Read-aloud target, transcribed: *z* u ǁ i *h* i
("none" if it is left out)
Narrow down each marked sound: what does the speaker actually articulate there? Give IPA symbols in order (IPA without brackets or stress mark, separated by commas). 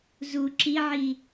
z, ʕ